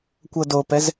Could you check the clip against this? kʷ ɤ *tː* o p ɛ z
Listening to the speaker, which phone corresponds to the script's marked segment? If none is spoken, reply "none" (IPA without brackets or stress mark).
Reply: d